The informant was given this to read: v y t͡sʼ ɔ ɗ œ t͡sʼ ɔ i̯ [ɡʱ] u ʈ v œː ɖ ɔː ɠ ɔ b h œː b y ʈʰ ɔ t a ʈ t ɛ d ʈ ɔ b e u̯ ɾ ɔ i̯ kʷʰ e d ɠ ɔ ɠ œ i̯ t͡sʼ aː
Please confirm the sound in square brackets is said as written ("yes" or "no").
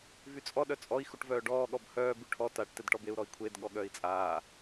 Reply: no